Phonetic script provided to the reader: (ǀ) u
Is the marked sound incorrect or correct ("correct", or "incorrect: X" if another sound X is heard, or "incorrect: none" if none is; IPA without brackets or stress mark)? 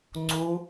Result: incorrect: ŋ͡ǀ